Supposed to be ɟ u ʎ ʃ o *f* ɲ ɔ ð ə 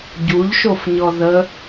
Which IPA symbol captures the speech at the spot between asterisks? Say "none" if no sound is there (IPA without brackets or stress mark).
f